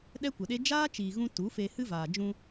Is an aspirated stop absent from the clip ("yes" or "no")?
yes